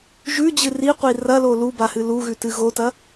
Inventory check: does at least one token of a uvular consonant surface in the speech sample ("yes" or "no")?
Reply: yes